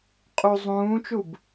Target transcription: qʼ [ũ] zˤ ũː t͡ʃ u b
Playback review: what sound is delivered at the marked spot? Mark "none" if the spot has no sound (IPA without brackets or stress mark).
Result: u